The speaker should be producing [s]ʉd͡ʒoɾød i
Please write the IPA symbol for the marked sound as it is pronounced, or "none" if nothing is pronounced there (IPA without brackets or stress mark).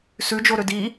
s